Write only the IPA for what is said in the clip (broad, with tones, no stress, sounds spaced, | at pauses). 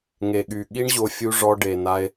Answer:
ŋ e˨ ɠ y˨ ɠ i˦ ɳ ʑ o˧ fʲ u˧ ʐ ɔ˧ ɖ e˨ n a˧ e̯